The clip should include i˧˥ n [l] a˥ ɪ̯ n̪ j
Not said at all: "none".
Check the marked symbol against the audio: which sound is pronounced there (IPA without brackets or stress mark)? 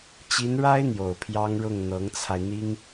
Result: ɻ